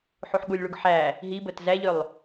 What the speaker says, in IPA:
ħ u ħ ɠ u lʲ ɭ u ɡ ħ æ | ɦ i b ə t z æ ʎ ø lˠ

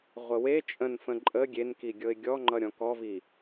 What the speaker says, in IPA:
ʁʷ ə w e t͡ʃʼ ə̃ n f ə̃ ǃʼ ə ɡʲ e n k i ɡʲ ɤ ɪ̯ ɡʲ ɔ ŋ͡ǃ ʌ ɾʲ ɔ̃ k ɔ v i

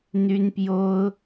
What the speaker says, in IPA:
n̪ y˥ n p j o˥ ʊ̯

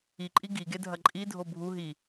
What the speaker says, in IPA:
i ǃʼ i ɡ i ɡ e dʱ ɐ ǃʼ i dʱ o bʱ u ɦ i

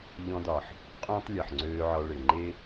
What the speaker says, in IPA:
ʎ ɔ̃˧ d ɒ˨ ħ | qʼ õː˦ tˤ lʲ ɒ˨ ħ ŋ͡ǀ øː˧ ʕ ɒ˧ ɭ ɪ˨ ŋ͡ǃ e˦

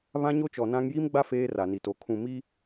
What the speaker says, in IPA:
β ã˦ ɲ o˦ t͡ʃ ɔ˨ n ã˦ ŋ j i˦ m ɡ͡b a˦ f eː˦ r a˨ n i˨ t o˨ kʰ ũ˨ m i˦

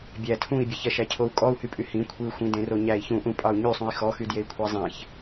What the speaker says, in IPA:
bʲ æ tʰ ũ i̯ bʲ e ç ɛ ʃ æ cʰ o u̯ kʼ ɔ u̯ h y pʼ y h ĩ kʷʰ i u̯ xʷ ĩ d ẽ r o ɲ æ i̯ ç ũ ʔ ũ pʼ ɑ u̯ ɲ y sˤ ũ i̯ x ɔ x y d j e i̯ kʷʰ ɛ zˤ ẽ ç

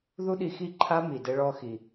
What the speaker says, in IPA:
ð u˦ ɗ i˧ x i˦˨ ǃʰ a˦ m i˨ d ɘ˦ ɭ ɔ˦ x i˧

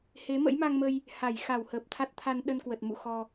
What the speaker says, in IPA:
h e˨˦ m ə̰˧˥ j m a˧ ŋ m ə˧ j | h a˧˩ j x a˧˩ w h əː˨˩ p̚ t̪ʰ a˦˥ t̚ t̪ʰ a˧ n ɗ ə˧ n k w ə˨˩ t̚ m ṵ˧˨ x ɔ˧

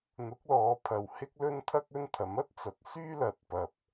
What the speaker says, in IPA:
n̪ ʊ˨˥ k̚ l ɔː˨˧ pʰ ɐ˨ w h ɪ˥ k̚ l ɵ˥ n t̪ʰ ɐ˥ k̚ ɵ˥ n t̪ʰ ɐ˨˥ m ɐ˥ t̚ t͡s ɐ˨˥ t̚ s yː˥ l ɐ˨ t̚ p ɐ˨ p̚

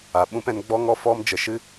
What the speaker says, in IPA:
a˨ ɓ ũ˦ p ɛ̃˦ n ɡ͡b ɔ˦ ŋ ɔ˦ f ɔ˦ m d͡ʒ ə˧ ʃ ɨ˦

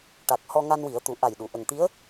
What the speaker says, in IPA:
ʈ a˨˩ k̚ h ɔ˧ ŋ a˧ n w i˨˩˦ ə̯ t̪ u˨˩˦ ʔ a˨˩ j ɗ u˨˩˨ ʔ ə˨˩ ŋ t̪ i˧˥ ə̯

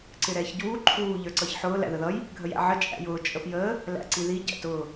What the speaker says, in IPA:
ǀ ɪ ɾ ɛː ç ɟ uː ǃʰ uː ʎ ə˞ ǀ ʌ ç ħ ʊː l æ̰ ð ə ð ʌ j | ɡʱ ə j æ̰ ʕ ə t͡ʃʼ æ̰ j ʊː t͡ʃʼ ə p j əː | l æ̰ ǀ i ð i ɟ æ̰ t ʊː

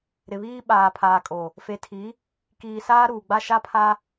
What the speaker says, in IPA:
ɾ ɪ˨ β iː˦ ɓ aː˨ pʰ aː˨ kʼ o˨ | f e˨ tʰ i˨˦ | k iː˨ s aː˦ ɾ uː˨ ɡ͡b a˦ ʃ a˦ pʰ a˦

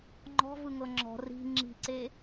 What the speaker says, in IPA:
ŋ͡ǃ ɔ̤ v ɯ ŋ ɤ ŋ͡ǁ ɔ̤ r i̤ ŋ͡ǁ i̤ ǀ e

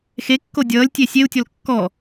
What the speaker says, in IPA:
x e kː o dʲ ʌː lʲ tʲ e sʲ e u̯ tʲ ɔ l kː ɔ

